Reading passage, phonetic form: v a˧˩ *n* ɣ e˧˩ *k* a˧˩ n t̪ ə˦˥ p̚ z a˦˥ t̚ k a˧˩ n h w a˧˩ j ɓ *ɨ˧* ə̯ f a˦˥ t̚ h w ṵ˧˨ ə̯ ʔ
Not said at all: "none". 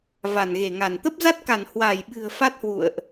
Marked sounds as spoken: n, ŋ, ɨ̤˨˩

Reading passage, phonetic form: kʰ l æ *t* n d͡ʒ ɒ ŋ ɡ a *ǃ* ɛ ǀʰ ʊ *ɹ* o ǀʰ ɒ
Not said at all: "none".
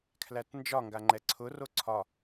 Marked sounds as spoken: t, ŋ͡ǃ, r

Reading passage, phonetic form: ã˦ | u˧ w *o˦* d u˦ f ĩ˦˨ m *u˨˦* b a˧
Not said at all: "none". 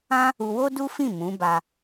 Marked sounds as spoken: o˦, ũ˨˦

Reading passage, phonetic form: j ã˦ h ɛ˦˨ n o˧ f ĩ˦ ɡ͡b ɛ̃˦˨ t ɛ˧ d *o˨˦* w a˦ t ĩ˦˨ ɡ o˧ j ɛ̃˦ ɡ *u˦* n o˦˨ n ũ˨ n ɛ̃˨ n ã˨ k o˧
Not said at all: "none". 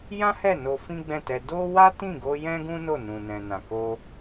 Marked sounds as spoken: o˦, ũ˦

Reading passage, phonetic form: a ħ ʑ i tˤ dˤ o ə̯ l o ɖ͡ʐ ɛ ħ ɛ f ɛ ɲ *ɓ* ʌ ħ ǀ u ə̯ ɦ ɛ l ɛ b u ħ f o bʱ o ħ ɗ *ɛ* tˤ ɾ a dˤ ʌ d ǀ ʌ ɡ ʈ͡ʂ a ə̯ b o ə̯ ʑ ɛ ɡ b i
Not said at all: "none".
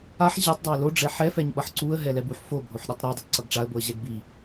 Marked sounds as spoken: ɓ, ɛ

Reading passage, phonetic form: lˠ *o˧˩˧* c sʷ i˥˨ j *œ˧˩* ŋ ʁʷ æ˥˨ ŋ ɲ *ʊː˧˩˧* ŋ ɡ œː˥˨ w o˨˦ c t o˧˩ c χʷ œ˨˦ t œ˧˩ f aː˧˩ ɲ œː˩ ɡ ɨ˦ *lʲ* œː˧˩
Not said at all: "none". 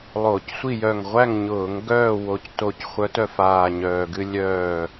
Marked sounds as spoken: o˧˩˧, œ˧˩, ʊː˧˩˧, lʲ

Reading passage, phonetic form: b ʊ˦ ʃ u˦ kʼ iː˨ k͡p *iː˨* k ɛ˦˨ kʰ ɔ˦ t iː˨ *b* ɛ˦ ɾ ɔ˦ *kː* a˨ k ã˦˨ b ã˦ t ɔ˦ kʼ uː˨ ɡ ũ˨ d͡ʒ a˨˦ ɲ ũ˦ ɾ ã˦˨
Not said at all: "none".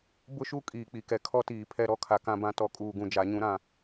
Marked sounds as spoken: i˨, pʰ, kʰ

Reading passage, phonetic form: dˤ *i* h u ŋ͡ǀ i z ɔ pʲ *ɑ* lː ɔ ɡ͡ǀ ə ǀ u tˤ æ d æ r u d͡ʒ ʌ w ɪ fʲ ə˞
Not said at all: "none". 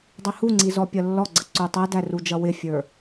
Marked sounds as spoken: i, ʌ

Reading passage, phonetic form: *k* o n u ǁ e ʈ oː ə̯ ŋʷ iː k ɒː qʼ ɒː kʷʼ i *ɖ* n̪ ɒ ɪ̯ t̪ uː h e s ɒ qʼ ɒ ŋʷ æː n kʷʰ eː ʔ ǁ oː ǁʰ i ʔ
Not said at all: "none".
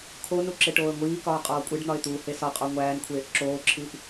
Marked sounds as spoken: kʰ, ɖ

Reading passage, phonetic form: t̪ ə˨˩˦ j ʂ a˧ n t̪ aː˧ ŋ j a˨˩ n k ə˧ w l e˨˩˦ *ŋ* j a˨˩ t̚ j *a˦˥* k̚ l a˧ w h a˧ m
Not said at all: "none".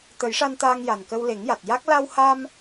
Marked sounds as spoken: ŋ, a˦˥

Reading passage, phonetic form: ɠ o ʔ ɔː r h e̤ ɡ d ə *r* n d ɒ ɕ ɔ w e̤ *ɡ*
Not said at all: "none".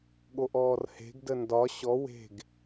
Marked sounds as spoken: none, ɡ

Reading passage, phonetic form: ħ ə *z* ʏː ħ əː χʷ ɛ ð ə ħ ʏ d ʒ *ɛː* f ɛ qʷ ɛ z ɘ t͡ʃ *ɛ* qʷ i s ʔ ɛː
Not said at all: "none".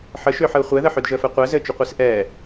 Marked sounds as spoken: ʃ, əː, ʏ

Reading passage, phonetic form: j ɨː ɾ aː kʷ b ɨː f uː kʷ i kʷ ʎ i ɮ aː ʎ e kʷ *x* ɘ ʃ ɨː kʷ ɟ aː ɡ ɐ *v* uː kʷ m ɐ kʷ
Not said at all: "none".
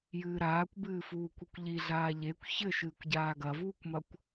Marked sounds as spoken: ç, v

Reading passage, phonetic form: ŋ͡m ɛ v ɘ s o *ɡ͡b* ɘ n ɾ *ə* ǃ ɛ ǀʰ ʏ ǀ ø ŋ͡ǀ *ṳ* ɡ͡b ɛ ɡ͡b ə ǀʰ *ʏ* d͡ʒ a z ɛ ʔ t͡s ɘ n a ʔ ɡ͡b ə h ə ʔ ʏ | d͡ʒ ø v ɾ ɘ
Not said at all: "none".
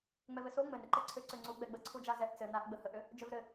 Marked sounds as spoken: ŋ͡m, ə, u, u

